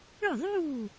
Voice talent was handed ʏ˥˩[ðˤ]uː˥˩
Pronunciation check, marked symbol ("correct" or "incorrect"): correct